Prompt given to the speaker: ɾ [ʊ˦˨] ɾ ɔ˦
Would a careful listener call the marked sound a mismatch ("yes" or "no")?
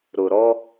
yes